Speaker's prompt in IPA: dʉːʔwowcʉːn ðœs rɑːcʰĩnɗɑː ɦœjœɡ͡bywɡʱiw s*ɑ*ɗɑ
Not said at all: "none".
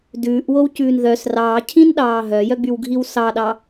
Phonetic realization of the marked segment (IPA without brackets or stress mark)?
ɑ